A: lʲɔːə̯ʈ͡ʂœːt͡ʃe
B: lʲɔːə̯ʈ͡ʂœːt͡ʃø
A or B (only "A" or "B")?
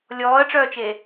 A